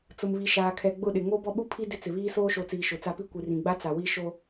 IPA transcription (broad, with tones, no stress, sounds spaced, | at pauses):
t͡s ʊ˨ m β i˨ ʃ aː˨ kʰ ɛ˨ ɡ͡b ʊ˦˨ ɗ ɪ˨ ŋ o˦ b ɔ˦ ɓ u˦ pʰ i˦ d ɪ˦ t͡s ɪ˨ β iː˦ s oː˦ ʃ o˨˦ t͡s iː˨ ʃ ʊ˨ t͡s a˦ p i˦ kʷ i˨ r ĩ˨ ɡ͡b a˦ t͡s a˨ w i˦ ʃ o˦